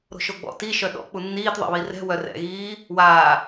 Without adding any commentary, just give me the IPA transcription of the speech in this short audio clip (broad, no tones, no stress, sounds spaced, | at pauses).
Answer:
ɾ o̤ ʃ o ɡ͡b ɔ̰ t i ʃ œ ɗ ɔ̰ k͡p u nː iː t ðˤ ɛ̰ β i r ɛ̤ w œ r ɛ̰ ɣ iː | w aː